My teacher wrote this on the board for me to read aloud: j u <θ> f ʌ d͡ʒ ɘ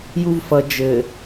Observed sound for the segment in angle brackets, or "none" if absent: v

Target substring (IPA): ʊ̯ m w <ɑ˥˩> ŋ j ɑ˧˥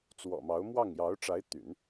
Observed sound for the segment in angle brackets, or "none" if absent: ɑ˥˩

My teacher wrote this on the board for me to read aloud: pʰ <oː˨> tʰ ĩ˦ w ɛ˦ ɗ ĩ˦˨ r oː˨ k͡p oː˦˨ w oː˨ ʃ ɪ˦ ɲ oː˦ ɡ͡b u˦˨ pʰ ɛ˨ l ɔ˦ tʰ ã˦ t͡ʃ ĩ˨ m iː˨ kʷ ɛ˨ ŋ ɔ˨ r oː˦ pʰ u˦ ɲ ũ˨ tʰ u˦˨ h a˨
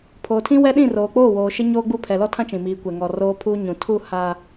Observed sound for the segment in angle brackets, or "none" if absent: oː˨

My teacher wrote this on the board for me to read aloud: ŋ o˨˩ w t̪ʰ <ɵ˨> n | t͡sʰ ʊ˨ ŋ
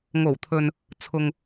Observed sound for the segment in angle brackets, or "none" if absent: ɵ˨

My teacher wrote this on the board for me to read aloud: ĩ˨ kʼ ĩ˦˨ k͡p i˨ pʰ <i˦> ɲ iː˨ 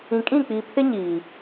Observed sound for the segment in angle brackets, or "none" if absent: ɪ˦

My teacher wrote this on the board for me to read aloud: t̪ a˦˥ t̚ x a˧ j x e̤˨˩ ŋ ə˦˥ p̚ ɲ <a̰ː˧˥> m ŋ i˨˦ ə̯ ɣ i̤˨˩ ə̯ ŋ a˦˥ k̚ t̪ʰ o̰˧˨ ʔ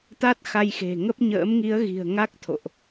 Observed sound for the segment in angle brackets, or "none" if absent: ə̰ː˧˥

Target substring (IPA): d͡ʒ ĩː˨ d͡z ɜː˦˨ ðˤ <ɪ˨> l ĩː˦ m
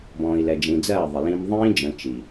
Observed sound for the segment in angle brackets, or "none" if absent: ɪ˨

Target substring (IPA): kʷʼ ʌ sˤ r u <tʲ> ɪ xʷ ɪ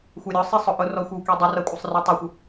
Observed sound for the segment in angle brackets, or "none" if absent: tˤ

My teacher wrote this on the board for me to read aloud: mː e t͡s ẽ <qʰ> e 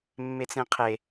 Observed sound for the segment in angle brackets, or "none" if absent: qʰ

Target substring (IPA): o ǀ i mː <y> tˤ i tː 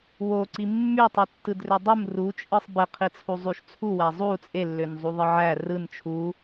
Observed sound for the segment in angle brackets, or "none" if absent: y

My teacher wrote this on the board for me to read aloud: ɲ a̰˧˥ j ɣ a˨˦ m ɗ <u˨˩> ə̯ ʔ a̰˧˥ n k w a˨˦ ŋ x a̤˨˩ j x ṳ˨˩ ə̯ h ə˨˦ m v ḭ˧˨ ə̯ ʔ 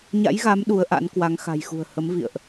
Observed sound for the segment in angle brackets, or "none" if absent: u˨˦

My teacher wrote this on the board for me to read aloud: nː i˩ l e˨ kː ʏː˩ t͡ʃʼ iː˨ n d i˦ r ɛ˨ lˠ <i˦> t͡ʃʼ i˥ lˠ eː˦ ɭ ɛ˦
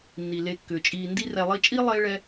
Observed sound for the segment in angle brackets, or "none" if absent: i˦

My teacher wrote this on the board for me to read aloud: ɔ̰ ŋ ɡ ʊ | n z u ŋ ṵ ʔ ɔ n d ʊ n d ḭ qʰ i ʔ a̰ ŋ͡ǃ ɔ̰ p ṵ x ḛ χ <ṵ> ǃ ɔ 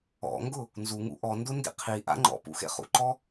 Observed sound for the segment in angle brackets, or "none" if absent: ṵ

